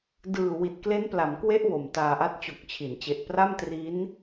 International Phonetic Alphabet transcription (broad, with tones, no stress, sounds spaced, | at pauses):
d ɯː˨˩ w i˨˩ t̚ k l e˦˥ n p l a˩˦ m k w e˦˥ ʔ w o˨˩ m t aː˧ ʔ a˥˩ t̚ t͡ɕ o˨˩ k̚ t͡ɕʰ i˩˦ n t͡ɕ e˨˩ ʔ p r a˥˩ m t r i˦˥ n